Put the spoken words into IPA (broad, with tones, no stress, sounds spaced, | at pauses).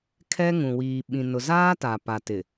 kʰ ɛ˦ ŋ ũ˨ w iː˨ ɓ ĩ˨ n ʊ˨ z aː˦ t a˨ p a˨ t ɪ˨